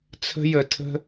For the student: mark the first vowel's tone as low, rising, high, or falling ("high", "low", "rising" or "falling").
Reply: high